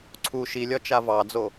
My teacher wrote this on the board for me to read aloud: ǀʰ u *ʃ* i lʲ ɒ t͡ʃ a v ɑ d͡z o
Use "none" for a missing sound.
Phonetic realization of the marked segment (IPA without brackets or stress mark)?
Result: ʃ